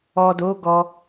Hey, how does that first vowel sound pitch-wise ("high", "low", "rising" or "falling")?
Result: low